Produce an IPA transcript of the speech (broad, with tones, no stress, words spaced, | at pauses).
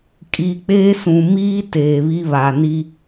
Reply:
kʼi˨k͡peː˦sũ˨ miː˦ teː˨βi˦ βa˨ni˦